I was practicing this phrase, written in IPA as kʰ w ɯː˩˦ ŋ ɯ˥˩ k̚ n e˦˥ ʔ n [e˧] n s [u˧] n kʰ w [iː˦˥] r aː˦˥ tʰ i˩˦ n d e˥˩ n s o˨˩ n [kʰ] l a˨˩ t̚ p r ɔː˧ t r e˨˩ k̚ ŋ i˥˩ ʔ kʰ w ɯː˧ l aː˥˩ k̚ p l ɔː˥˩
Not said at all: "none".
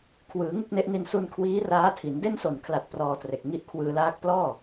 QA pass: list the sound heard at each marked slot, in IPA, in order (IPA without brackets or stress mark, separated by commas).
i˧, u˧, iː˦˥, kʰ